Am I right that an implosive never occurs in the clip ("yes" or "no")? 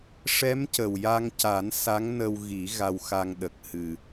no